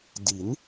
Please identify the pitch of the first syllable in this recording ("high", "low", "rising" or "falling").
rising